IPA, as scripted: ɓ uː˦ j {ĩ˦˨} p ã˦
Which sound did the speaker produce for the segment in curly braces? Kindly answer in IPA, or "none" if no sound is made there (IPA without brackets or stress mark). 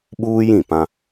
ĩ˦˨